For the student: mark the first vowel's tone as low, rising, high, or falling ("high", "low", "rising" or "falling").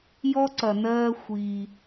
high